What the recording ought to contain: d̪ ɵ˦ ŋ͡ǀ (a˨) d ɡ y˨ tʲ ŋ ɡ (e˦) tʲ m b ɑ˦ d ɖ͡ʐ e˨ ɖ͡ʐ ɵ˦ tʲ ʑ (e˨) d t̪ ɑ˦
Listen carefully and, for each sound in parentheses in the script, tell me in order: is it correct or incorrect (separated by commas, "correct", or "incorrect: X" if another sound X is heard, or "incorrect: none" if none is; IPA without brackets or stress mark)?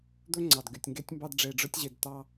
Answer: incorrect: ɑ˨, correct, correct